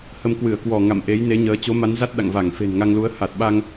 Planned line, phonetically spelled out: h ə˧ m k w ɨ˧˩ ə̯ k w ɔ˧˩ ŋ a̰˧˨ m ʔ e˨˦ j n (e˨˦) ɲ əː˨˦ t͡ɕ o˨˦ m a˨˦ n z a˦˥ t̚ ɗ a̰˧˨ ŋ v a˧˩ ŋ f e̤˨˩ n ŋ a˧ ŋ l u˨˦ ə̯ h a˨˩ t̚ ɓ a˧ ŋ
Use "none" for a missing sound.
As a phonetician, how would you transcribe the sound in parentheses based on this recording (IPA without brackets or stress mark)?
e˨˦